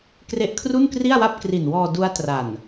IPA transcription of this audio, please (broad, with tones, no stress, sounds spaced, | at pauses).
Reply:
k r e˦˥ ʔ kʰ r u˥˩ n k r i˥˩ a̯ w a˥˩ p̚ k r i˨˩ n w ɔː˧ d u˦˥ a̯ t r a˨˩ n